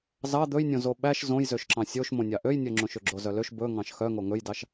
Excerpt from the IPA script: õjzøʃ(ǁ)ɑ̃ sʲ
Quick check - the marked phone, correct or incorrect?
correct